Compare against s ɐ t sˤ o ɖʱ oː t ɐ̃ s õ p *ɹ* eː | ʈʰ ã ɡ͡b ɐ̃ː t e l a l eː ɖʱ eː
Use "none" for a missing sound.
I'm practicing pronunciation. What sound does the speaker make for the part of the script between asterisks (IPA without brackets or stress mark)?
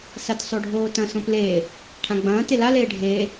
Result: l